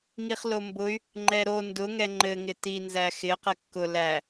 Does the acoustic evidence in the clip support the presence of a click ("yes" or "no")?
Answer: yes